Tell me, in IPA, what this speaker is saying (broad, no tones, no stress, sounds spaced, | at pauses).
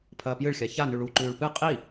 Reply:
pʰ ɐː p j ɨ ɭ xʲ a ç a n ʉ ɭ u ǃ ʉː ɭ p ɨ qʼ i